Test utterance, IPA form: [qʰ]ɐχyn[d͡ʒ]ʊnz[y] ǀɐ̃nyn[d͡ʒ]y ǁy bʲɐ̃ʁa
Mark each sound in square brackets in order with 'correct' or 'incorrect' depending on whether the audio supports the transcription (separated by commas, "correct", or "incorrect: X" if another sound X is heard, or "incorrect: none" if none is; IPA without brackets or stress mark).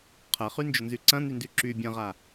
correct, correct, correct, incorrect: d